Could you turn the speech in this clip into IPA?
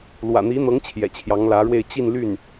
lwä̰˨˩n̪i˧˥n̪ɤ˧˥ŋ t͡ɕʰjɛ̰˨˩t͡ɕʰjɑ˧˥ŋlä˧˥ɻwe˥˧ɪ̯ t͡ɕi˥˧nly˥˩n

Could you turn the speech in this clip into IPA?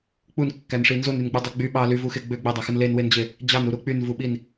k͡punkːænʂi nzonynɡ͡bɯdˤe ɡ͡by ɓɑ lyvuxe ɡ͡bø ɡ͡bedˤæxɯn lenwend͡ʑe | d͡ʑɑnuɾu k͡pynvuɓin

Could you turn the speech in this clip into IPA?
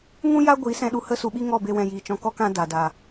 ŋũ˦ja˦ ɡʷiː˨˦sɛ̃˧ ɗu˧hə˦su˧ɓi˦ ŋɔ˦˨be˧wɛ̃˨ jiː˨t͡ʃɔ̃˧kɔ˦ kã˧ da˨da˨

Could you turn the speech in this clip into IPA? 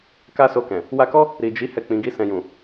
ka˦so˧kɛ̃˨ | wa˧kɔ˦ | ɾi˨d͡ʒi˨˦ hɛ˦˨k͡pĩ˨˦ɡi˦sɛ̃˧ jũ˨

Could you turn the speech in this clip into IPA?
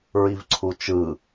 ɹivǀʰut͡ʃɯ

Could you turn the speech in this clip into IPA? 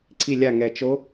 ǀi˧˩lʲa˧˩ ŋɛ˩ t͡ʃo˨˦

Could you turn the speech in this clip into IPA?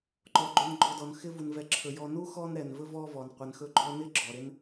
ǃɔ˩ɡ͡ǃɵ˨n ɡ͡ǃɔ˨dɔ˩n xɪ˦vu˩nvɛ˨ ǁʰɵ˩jɔ˨ nu˥xɔ˦n ɾɛ˩nvɵ˥vɔ˦vɔ˩n qʷɛ˩nxɵ˦ɡ͡ǃɔ˦nɪ˥ ɡ͡ǁɔ˩ɾɪ˦n

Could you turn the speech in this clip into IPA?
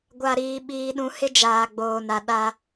ɡʷa˨ɾiː˨ ɓiː˨ɗũ˨ hɪ˦ d͡ʒaː˨ɡ͡boː˨na˨ ɗa˦

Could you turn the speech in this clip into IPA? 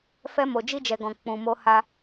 fɛ˧ mo˨d͡ʒi˧d͡ʒɛ˨ɡɔ̃˨ k͡pũ˨mo˧ ha˦

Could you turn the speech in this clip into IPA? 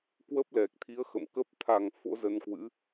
kwə˦˥p̚lɛ˨˩k̚t̪ʰi˨˦ə̯ xə̰˧˨mkə˦˥p̚ t̪ʰa˨˩ŋ fo̰˧˥zə˧nkwɨ̰˧˥

